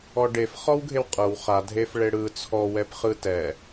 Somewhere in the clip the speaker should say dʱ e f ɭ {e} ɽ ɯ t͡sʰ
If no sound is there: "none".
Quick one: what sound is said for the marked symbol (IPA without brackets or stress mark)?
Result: e